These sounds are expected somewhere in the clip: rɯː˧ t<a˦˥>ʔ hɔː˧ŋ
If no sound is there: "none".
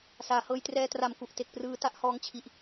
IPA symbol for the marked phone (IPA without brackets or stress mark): a˥˩